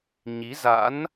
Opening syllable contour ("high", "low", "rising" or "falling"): rising